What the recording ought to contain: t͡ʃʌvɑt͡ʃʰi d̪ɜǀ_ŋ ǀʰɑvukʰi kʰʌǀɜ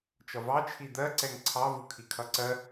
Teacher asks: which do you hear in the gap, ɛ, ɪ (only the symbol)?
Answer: ɛ